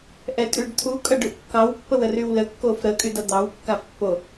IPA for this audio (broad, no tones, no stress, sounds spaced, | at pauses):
ʔ ɛ tʼ y ɖ t̪ʰ u kʼ ʌ ɖ ʉ ʔ kː ɑ w pː ə w ə r y w l ə kː o f ɾ ə kʼ y d ʌ d̪ ɑ w kː a f pː o